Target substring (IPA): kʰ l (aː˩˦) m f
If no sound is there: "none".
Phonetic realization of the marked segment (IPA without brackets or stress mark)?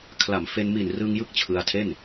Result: a˩˦